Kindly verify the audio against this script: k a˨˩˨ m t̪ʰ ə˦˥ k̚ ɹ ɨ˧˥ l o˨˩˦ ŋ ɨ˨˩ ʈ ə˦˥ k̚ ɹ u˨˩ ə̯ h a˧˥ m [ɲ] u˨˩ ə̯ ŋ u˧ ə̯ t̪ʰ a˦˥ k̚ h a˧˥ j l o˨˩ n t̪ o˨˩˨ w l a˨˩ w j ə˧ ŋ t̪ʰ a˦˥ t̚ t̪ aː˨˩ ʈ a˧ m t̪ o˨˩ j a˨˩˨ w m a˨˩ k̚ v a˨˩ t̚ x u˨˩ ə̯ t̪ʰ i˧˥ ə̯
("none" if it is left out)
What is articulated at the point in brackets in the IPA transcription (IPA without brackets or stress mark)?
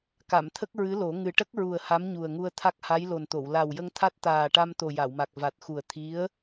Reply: ɲ